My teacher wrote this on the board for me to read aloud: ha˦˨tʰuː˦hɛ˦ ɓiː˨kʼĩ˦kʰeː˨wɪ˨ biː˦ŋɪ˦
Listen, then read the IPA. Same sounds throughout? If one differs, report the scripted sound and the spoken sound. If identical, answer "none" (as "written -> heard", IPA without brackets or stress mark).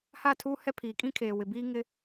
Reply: ɓ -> pʰ